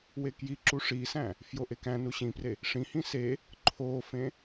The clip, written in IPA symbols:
w e k j i ǁ u ʂ i s æ̃ | f j o ʔ e k æ̃ n u ɕ ĩ p r e | ʂ ĩ h ĩ s e | ǃʰ o f ẽ

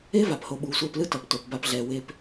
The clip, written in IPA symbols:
e˦ v a˨ p h o˧ ɓ uː˨ sʷ ɛː˧ p l ɯ˦ t ʌ˨ p t o˨ p b a˧ p ɮ ɛː˨ w e˧ p

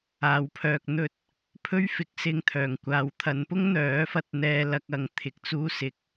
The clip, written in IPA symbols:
aː˨ w pʰ œː˨ k̚ n̪ ɵ˧ t̚ | pʰ ɵ˥ ɥ f ɪ˨˥ k̚ s ɪ˧ ŋ t̪ʰ œː˨˩ ŋ kʷ aː˨ w t̪ʰ ɐ˨˧ n p ʊ˥ ŋ n̪ œː˨˥ f ɐ˧ t̚ n̪ ɛː˧ l ɐ˧ k̚ ɐ˧ ŋ t̪ʰ ɪ˨ k̚ t͡s uː˧ s ɪ˨˥ k̚

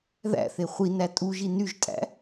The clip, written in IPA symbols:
ð æ̰ θ e χʷ i n æ tʼ u ʒ i n y ʒ tʼ æ̰

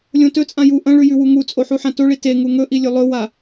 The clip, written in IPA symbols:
lʲ õ t ɵ t͡sʼ ã j u ʔ ɐ̃ ɭ ʉ j ʉ w u ŋ u t͡sʼ o ħ u ħ ã t o ɭ i t e ŋ u ŋ ɵ ʔ i lʲ ɵ lˠ ɵ w a

